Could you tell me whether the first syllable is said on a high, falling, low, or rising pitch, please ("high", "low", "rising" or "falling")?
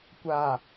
low